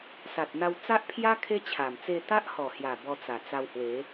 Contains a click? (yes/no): no